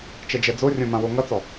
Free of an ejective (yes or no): yes